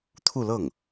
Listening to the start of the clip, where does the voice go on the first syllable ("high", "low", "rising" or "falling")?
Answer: falling